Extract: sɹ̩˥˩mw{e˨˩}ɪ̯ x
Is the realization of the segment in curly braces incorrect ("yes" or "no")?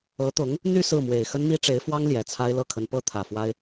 no